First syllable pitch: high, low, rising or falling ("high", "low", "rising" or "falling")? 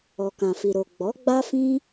low